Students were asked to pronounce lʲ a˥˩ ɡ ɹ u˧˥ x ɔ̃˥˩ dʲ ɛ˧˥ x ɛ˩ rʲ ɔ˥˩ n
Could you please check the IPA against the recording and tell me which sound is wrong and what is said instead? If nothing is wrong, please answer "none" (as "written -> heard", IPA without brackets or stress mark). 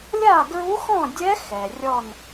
none